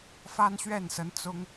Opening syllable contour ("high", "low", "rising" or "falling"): high